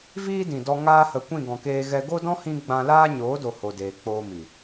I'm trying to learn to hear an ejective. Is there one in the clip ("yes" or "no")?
no